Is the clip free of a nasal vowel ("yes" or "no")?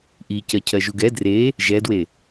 yes